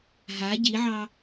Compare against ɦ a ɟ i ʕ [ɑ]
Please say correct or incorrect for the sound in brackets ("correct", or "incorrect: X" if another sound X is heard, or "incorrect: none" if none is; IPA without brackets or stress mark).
correct